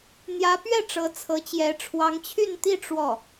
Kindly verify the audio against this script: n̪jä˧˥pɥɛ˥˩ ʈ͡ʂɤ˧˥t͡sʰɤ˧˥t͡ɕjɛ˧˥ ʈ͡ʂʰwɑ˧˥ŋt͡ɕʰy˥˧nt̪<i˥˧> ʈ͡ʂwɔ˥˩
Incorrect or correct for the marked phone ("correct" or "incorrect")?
correct